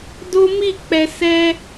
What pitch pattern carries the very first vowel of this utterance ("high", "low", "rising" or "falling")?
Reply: high